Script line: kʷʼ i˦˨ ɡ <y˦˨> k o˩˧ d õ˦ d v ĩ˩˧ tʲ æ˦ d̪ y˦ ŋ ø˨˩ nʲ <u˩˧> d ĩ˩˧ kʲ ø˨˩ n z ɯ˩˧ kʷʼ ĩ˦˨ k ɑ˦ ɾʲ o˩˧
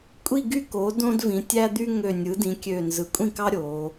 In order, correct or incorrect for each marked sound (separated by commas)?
correct, incorrect